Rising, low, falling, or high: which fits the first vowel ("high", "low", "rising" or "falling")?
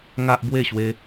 high